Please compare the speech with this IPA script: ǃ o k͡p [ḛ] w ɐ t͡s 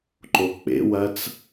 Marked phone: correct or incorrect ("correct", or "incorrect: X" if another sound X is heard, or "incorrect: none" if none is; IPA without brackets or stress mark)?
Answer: correct